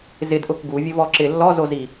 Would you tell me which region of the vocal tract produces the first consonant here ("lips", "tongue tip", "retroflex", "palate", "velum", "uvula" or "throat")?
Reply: tongue tip